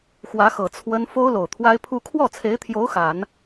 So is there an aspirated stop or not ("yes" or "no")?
yes